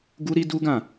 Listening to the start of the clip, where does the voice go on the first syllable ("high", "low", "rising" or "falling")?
high